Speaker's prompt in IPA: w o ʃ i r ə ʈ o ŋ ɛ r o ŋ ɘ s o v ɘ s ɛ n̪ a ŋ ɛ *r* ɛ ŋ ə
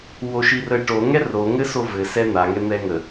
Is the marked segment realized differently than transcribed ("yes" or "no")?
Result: yes